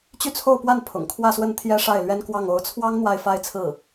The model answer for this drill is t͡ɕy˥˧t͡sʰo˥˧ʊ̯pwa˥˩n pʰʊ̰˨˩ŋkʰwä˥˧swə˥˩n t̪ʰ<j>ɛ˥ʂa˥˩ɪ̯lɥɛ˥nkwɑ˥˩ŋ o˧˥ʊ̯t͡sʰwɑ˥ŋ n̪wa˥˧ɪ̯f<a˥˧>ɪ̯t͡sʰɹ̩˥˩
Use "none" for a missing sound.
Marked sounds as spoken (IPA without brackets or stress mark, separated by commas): j, a˥˧